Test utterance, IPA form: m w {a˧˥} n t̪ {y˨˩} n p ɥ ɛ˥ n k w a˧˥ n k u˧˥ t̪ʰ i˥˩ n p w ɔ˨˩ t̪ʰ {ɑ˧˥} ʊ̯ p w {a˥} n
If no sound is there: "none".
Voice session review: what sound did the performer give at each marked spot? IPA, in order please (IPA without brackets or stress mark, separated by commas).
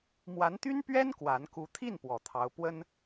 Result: a˧˥, y˥, ɑ˧˥, ə˥